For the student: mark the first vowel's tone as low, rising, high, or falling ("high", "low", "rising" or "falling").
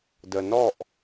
low